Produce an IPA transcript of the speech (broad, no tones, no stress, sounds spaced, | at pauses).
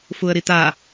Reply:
f u ə̯ ɾ i t̪ a